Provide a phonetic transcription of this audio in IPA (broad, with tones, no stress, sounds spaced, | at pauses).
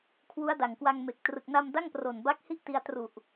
kʰ w u˦˥ a̯ d a˨˩ ŋ k w a˧ ŋ m e˨˩ k̚ t r ɯ˨˩ k̚ n a˧ m d a˥˩ ŋ p r o˨˩ n b a˦˥ k̚ h i˥˩ ʔ t i˧ a̯ t r u˨˩ ʔ